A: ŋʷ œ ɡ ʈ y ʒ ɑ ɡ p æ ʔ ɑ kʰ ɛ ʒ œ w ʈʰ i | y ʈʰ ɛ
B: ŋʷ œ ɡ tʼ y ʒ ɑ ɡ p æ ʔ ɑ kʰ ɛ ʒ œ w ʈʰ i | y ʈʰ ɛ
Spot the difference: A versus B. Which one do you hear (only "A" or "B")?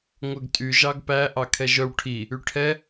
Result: B